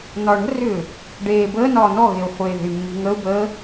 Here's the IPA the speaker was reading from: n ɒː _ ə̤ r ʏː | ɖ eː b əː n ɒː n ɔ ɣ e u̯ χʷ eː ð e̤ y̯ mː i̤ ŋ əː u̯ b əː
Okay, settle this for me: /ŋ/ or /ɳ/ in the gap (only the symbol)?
ɳ